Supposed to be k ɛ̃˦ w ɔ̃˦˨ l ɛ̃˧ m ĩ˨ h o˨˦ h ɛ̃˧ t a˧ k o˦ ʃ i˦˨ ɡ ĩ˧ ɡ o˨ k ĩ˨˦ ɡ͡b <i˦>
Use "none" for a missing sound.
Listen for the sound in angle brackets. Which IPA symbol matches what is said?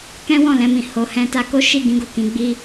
i˦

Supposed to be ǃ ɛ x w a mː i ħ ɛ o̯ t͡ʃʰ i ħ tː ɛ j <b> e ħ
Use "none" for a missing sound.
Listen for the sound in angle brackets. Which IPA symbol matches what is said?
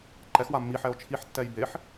b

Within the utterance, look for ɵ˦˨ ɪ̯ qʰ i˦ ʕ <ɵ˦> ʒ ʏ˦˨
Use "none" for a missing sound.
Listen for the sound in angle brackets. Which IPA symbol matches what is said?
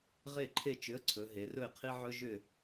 ɵ˦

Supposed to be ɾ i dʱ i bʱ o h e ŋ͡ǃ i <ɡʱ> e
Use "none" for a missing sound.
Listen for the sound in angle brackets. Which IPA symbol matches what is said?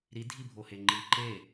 ǃ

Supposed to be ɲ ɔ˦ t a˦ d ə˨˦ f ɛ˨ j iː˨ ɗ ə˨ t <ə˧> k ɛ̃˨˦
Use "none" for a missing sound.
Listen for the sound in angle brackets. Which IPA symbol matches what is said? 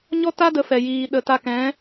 a˧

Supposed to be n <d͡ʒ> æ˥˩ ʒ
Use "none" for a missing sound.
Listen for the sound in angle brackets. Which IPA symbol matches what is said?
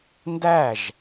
d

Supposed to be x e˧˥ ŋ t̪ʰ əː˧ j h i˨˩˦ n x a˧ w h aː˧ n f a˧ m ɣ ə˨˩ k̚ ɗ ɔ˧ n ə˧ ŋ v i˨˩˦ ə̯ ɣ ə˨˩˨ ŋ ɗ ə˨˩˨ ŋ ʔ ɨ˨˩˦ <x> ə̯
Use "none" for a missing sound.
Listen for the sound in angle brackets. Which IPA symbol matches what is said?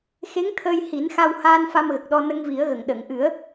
none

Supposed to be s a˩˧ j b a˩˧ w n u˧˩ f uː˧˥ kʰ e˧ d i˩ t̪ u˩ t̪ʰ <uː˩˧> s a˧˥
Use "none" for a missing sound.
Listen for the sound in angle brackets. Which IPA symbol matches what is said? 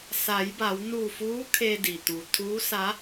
uː˧˥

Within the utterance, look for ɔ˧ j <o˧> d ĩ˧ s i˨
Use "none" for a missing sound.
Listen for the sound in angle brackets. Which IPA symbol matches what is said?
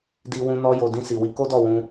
o˨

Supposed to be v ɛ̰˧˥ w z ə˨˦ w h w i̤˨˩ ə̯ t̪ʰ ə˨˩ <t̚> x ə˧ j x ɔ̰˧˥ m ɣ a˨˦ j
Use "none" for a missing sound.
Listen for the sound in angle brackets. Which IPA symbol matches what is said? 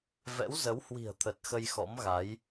t̚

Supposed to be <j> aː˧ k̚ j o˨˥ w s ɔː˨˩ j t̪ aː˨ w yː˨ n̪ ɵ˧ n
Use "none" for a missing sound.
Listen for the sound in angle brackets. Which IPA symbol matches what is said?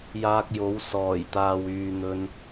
j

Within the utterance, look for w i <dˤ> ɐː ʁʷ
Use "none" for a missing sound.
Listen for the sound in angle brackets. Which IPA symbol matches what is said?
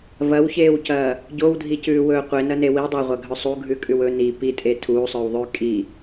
dˤ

